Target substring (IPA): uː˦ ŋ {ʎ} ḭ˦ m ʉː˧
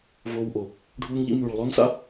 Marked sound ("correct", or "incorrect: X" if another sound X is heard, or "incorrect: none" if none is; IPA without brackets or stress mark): correct